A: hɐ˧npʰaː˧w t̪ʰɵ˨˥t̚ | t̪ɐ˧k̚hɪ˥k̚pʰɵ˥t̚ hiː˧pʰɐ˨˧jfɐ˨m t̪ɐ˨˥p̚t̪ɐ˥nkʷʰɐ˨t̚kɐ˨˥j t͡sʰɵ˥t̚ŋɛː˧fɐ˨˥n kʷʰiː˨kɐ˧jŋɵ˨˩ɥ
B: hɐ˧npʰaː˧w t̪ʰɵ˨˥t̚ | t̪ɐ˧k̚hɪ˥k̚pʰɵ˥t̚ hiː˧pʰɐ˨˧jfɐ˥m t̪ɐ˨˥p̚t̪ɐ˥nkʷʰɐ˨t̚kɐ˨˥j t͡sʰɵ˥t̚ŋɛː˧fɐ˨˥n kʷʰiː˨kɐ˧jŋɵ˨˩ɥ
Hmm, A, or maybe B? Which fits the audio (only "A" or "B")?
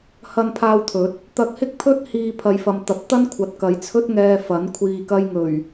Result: A